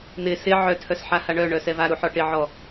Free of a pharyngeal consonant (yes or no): no